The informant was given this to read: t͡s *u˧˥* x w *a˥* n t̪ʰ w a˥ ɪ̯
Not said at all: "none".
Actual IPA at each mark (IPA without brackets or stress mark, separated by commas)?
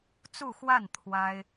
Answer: u˥˧, a˥˩